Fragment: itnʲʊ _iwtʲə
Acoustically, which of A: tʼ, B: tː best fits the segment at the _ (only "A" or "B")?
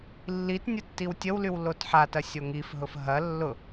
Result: B